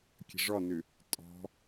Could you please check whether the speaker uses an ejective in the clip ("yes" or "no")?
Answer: yes